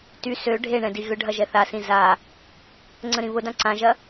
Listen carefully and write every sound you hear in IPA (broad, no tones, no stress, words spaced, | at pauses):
ty sø ɖʱeɳɛ̃ diɣʏɖʱɐ ʒɛθasĩ za | ŋ͡ǀə̃ɾĩβʊdã ǀãʒɐ